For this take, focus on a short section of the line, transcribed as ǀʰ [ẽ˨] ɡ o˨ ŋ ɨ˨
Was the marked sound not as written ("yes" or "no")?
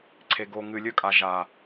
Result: yes